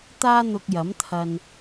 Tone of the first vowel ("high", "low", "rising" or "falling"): high